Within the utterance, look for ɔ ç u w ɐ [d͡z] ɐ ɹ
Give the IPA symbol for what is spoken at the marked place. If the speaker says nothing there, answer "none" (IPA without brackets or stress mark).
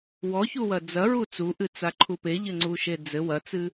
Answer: d͡z